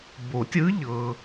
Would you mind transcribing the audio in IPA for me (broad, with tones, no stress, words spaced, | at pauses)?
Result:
bo˨˩˦tʲɯ˧˥ʎɤ˨